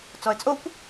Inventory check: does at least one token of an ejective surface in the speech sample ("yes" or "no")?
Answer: yes